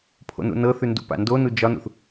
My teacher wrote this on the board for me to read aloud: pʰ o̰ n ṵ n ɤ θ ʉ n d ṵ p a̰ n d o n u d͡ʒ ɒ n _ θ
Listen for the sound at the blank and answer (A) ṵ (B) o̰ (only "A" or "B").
A